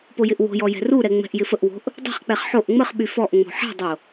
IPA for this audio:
p o j ɪ ʔ w o̤ j ɔ j ɛ̤ r u ɾ ɛ ŋ͡m ɛ̤ ʔ j ɪ f ə ʔ w o̤ ʔ | dˤ ɛ̤ χ k͡p ɛ χ ħ o ʔ ŋ͡m ə χ ɓ y f ɔ ʔ ŋ͡m o̤ ħ ɛ̤ dˤ o

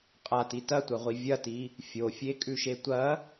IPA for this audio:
qʼ a t i t ɐ tʷ ɐ ʁʷ i vʲ ɐ t i | fʲ o fʲ e kʼ ʉ ʃ e tʷ ɐ

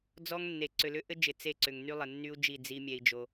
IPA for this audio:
d͡z ɔ˦ ŋ nː e˨ ǀ ʏ˨ l ʏ˦ ʔ ɘ˦ d͡ʒ ɪ˨ t͡s e˦˨ ǀ ʏ˨ ŋ n y˦ lˠ ɘ˨ nː y˦ u̯ d͡ʒ i˦˨ d͡z i˦ mʲ ɛ˦ i̯ d͡ʒ o˦

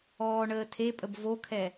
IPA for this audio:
ɔː ɳ əː tʰ e pʼ ə b v o kʰ ɛ

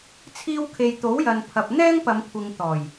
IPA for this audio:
t͡sʰ iː˧ w kʰ e˨ j t̪ o˨˥ w j ɐ˨ n pʰ ɐ˨ p̚ n̪ ɛː˥ ŋ p ɐ˨˧ m kʷʰ ɪ˨ ŋ t̪ ɔː˨˩ j

